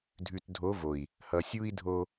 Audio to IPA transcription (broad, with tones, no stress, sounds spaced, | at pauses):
dʱ ʉ˨ t dʱ o˨˦ v o˨ i̯ | h ʌ˨ sʲ u˦ i̯ dʱ o˦